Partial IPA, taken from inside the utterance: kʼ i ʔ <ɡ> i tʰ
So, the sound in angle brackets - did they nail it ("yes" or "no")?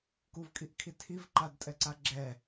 no